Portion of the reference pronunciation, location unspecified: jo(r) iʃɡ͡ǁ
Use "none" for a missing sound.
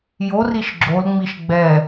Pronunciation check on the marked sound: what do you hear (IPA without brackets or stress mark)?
r